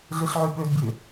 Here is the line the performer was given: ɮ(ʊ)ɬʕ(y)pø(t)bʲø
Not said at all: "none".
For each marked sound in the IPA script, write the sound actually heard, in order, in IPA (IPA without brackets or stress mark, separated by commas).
ɯ, y, d